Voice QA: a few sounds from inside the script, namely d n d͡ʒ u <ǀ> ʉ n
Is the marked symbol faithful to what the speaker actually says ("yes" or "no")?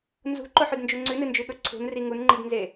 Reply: no